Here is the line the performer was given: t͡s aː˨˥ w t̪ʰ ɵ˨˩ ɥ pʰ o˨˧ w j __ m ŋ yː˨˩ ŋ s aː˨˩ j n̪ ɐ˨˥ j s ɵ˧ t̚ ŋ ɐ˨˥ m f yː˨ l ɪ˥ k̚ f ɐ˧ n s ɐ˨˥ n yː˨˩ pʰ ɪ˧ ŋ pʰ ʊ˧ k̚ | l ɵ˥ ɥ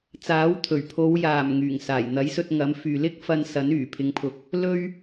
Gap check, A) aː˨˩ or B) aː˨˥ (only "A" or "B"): A